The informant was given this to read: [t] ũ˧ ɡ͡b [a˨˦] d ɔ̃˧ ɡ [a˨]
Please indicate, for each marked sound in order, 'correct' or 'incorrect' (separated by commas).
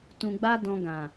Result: correct, incorrect, incorrect